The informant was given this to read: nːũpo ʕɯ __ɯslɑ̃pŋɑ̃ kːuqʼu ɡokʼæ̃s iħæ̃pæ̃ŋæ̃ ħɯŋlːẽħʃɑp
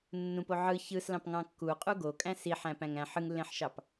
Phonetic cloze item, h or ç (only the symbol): ç